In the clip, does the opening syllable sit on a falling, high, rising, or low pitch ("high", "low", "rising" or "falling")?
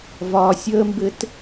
high